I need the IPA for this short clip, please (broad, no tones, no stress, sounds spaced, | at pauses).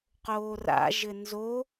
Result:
q oː r a̰ ʒ ɘ n z o